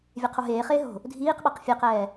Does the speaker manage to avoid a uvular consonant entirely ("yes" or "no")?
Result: no